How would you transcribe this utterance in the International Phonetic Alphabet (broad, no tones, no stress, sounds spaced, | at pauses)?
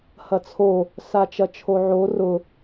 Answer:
h ɐ t͡sʰ o | s a t͡ʃ ɐ t͡ʃʰ o ʕ o r ʊ